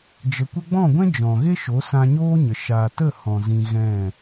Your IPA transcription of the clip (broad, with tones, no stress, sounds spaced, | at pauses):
d͡ʒ ə˨ kʷ ə˧ ɡ͡b ɔ̃˦˨ ɡʷ ɛ̃˦ d͡ʒ ɔ̃˨ ɣ e˦ ʃ o˨˦ s ã˧ ɲ oː˦ ɲ ə˨ ʃ aː˨ t ə˦˨ h ɔ̃˨ z ĩ˧ ɣ ɛ̃˦˨